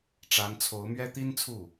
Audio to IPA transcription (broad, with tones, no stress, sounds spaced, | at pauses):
ʈ͡ʂ a˧˥ n t͡sʰ o˧˥ ʊ̯ m ɥ ɛ˥ t̪ i˥ n t͡sʰ u˥˩